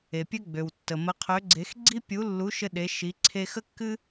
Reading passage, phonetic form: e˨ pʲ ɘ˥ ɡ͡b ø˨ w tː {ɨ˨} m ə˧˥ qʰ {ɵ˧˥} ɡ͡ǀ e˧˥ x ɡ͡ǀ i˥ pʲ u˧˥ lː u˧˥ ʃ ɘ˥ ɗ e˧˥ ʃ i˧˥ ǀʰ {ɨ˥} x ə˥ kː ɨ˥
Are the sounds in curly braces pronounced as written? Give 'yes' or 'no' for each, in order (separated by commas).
no, no, no